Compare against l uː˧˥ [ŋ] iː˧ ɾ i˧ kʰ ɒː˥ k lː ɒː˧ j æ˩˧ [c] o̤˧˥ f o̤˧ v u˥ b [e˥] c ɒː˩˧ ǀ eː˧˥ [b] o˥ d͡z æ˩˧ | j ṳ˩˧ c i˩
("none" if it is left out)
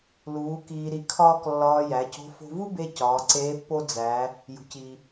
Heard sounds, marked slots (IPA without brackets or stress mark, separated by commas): k, c, e˧, pː